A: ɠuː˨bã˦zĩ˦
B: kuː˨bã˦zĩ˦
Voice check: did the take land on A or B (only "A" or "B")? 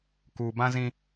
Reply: B